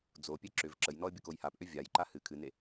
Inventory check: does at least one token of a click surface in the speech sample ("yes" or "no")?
yes